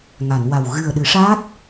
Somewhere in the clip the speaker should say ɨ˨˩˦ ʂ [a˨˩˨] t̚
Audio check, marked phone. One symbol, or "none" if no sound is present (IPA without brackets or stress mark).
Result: a˦˥